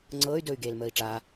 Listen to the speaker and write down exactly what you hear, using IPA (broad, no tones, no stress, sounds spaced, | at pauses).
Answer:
ŋ͡ǀ ɤː y̯ d ɵː y̯ ɡ eː l m əː i̯ ʈ͡ʂ aː